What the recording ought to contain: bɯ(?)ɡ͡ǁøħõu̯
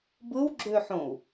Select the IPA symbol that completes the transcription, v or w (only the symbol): w